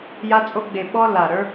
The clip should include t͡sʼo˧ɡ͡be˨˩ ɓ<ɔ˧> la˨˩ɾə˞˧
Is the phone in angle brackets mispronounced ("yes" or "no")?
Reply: no